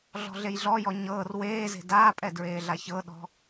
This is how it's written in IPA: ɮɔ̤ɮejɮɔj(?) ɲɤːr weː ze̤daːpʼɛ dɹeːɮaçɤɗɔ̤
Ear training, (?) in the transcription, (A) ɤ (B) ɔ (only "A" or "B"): B